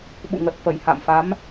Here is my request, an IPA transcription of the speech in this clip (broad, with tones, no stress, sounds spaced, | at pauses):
ɓ ṵ˧˨ ŋ ə˨˩ t̚ f ə˧˩ j h a̰˧˨ m f a˨˦ m